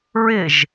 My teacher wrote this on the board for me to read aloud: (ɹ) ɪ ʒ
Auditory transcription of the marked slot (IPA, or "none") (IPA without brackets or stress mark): ɹ